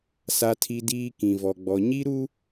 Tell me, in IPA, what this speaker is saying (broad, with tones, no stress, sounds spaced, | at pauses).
s a˦ tʰ i˦ d iː˦ k ĩ˨ v ɔ˨ ɡ͡b ɔ˨ ɲ i˦ ɾ u˦